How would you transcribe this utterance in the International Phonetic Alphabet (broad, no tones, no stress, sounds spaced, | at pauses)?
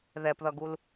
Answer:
ð ɛ p ð ʌ ɡ u l